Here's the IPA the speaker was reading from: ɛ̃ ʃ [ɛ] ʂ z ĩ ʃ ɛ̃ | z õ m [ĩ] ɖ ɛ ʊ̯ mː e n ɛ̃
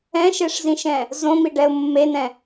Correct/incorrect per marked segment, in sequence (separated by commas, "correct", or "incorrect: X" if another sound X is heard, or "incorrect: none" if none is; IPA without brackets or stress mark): incorrect: e, incorrect: i